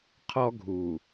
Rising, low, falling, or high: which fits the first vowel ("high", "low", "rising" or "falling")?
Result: high